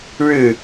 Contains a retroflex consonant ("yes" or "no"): yes